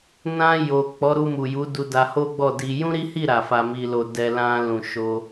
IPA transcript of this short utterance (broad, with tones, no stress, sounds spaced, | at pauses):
n ã˧ j o˨ k͡p ɔ˨˦ ɾ u˧ m u˨ j u˨˦ d u˧ d a˧ h o˦ ɡ͡b ɔ˦˨ d i˧ j ũ˦ ɾ i˦ h i˦˨ ɾ a˨ f a˧ m i˧ l o˧ d ɛ˧ l ã˧ l ũ˨ ʃ o˧